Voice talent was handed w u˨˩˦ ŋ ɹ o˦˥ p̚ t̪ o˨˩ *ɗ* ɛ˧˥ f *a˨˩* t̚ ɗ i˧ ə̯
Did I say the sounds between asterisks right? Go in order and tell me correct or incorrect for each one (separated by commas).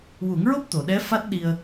correct, incorrect